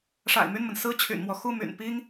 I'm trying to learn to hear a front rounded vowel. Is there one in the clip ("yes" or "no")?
yes